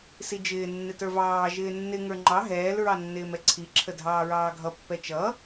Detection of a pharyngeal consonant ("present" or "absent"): absent